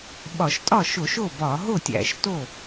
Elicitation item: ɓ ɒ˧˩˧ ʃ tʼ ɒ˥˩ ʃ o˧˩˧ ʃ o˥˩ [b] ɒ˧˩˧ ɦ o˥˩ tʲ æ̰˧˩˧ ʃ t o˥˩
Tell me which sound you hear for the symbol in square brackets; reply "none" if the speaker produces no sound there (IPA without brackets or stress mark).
b